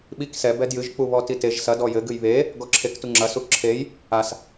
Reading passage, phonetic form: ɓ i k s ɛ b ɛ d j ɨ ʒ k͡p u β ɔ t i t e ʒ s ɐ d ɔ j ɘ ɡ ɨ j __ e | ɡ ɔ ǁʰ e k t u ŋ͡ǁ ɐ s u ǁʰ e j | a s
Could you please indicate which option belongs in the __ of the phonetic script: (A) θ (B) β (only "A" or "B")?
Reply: B